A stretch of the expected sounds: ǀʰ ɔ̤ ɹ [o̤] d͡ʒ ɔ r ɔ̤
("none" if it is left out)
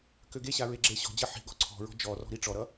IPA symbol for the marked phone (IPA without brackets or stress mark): ɔ̤